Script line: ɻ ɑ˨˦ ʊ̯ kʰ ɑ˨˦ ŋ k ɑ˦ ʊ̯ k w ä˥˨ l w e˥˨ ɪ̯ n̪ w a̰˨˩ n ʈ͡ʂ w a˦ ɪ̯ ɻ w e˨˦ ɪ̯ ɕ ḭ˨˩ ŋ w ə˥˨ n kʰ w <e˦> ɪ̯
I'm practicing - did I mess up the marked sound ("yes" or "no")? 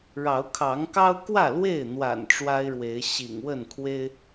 no